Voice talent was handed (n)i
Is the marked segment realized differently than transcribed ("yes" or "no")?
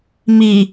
yes